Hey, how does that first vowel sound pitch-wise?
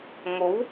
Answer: rising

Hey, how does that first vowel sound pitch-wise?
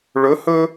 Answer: rising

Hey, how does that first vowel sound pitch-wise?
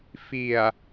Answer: low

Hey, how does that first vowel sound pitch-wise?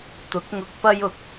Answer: rising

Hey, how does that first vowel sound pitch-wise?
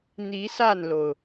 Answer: rising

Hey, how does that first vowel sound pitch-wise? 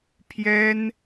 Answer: high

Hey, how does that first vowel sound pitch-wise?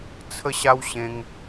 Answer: high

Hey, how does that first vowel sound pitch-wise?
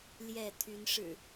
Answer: falling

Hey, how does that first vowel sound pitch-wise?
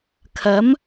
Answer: rising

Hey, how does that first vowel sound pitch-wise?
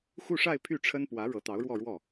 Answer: falling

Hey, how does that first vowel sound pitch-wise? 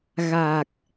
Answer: low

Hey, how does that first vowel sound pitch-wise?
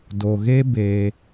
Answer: low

